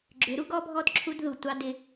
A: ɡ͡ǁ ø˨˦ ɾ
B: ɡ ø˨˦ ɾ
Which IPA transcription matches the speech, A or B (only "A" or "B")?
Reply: A